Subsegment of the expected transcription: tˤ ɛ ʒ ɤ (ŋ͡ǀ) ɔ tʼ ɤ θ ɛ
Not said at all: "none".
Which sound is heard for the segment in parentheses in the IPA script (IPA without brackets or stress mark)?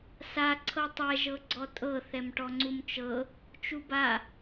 ɡ͡ǀ